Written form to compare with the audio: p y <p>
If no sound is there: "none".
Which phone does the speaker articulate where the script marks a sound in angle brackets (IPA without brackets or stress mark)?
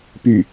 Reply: none